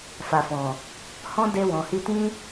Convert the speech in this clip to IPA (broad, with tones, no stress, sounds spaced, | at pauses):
f a˨ f ɔ̃˨ | h ɔ̃˦ d e˧ w ɔ̃˨ h i˧ t ĩ˦